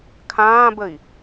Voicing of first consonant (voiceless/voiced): voiceless